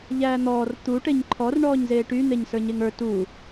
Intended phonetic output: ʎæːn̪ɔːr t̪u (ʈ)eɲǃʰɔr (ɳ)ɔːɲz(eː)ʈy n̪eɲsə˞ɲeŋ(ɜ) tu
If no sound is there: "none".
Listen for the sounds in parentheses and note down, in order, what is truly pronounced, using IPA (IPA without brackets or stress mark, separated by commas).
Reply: ʈ, ɳ, eː, ə˞